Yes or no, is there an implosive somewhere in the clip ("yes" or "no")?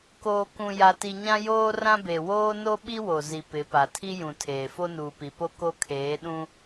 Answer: yes